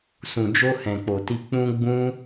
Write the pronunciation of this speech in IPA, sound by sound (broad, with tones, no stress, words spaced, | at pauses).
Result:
sũ˨d͡ʒo˧ hɛ̃˨k͡po˨ti˧ k͡pũ˧ ɡ͡bũ˦